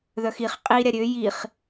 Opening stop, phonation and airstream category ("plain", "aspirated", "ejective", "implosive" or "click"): ejective